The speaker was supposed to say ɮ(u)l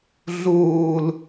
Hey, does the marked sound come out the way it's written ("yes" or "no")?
no